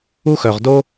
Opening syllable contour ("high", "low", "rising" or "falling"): high